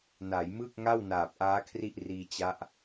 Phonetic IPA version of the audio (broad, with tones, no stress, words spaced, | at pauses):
na˩˦jmɯ˥˩k̚ ŋa˥˩wnaː˨˩p̚ʔaː˦˥ kʰri˥˩ʔriː˧t͡ɕa˦˥ʔ